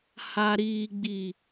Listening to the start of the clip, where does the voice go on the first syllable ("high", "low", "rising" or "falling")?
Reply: low